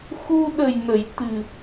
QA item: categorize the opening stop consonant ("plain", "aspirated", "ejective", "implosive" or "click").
implosive